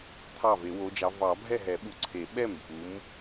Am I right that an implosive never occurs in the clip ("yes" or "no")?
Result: no